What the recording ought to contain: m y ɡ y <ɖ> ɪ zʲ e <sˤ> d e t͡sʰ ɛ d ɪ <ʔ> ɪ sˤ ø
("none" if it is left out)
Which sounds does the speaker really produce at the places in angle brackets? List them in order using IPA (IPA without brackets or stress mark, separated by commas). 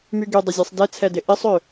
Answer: dˤ, sˤ, ʔ